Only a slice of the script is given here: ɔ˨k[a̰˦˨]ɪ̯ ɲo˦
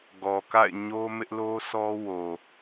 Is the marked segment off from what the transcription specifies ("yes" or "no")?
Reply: no